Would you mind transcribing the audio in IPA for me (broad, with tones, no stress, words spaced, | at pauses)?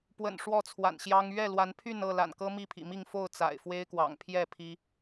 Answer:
pwə̰˨˩n ʂwɔ˥˨t͡sʰwa̰˨˩nɕjɑ˦ŋ ɥɛ˥˨lwa˨˦npʰy˥˨nɤ˥˨ la̰˨˩nkɤ˦ mi˥˨pʰḭ˨˩mi˥˨ŋ fo˥˨ʊ̯t͡sa̰˨˩ɪ̯ fwe˦ɪ̯kwɑ̰˨˩ŋpʰjɛ˥˨ pʰi˦